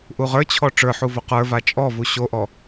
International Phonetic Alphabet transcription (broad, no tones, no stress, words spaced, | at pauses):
ʔuʁə˞t͡ɕʰɔ ʈ͡ʂə˞ħu voqə˞va t͡ʃʼɔvu ɕoʔɔ